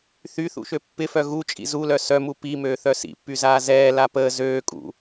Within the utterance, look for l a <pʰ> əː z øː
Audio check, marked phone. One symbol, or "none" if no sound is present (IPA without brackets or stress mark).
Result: p